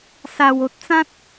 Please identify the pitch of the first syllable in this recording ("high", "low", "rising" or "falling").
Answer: low